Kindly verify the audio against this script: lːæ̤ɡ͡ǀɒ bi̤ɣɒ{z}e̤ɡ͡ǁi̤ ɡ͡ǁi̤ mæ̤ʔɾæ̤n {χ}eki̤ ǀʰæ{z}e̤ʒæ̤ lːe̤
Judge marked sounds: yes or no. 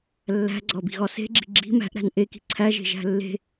no, no, no

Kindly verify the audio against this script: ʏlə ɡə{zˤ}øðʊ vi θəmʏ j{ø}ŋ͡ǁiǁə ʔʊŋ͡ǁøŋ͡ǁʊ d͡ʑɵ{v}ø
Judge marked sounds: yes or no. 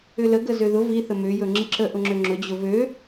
no, no, yes

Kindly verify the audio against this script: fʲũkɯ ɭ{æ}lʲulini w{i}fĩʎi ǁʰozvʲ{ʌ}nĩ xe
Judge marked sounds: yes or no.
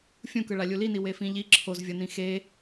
no, no, yes

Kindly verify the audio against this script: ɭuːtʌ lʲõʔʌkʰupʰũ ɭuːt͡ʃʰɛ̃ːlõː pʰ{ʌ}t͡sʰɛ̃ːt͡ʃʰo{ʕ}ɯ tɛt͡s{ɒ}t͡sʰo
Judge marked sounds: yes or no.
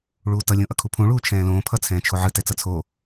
yes, yes, no

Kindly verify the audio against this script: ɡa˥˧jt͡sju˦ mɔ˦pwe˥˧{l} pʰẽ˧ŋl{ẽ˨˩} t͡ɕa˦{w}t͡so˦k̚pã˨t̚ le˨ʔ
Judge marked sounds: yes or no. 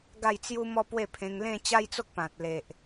no, no, no

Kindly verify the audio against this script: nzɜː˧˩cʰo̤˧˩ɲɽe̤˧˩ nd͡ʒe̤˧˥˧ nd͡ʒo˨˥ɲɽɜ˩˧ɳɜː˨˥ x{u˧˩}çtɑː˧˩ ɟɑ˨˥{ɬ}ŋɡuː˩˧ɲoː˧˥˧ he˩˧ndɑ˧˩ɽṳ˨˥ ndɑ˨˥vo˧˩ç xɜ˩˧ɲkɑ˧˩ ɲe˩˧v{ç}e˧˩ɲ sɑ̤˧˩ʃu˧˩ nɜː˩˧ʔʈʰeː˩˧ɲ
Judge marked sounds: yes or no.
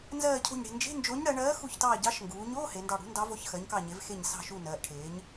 yes, no, no

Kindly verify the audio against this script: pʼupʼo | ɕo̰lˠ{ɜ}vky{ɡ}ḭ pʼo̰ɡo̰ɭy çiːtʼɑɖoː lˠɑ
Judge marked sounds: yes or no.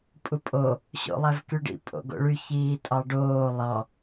no, no

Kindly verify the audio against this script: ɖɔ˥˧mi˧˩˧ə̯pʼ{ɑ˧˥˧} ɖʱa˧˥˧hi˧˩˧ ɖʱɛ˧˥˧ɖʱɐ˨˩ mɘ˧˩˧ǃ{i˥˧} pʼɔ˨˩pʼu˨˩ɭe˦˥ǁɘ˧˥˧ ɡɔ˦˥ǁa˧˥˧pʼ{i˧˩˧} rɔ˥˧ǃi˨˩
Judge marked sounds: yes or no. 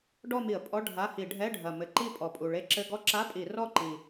no, yes, yes

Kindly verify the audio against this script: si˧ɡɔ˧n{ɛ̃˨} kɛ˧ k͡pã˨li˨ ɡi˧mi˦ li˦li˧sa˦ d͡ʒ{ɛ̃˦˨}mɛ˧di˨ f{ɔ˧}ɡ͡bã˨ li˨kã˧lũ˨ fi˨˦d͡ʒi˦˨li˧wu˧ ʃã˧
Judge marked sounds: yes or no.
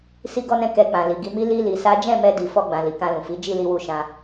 no, yes, yes

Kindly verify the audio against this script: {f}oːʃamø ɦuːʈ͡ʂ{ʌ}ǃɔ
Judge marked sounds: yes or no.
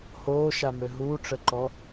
no, no

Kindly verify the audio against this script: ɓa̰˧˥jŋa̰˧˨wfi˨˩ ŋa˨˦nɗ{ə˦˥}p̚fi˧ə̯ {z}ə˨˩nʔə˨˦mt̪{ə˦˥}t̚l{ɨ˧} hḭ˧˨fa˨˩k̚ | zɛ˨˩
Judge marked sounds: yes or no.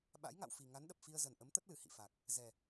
no, yes, yes, no

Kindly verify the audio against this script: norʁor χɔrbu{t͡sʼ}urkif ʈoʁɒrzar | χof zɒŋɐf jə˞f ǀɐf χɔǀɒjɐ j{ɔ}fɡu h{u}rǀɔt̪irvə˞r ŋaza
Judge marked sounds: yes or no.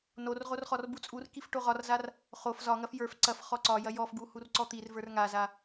yes, yes, yes

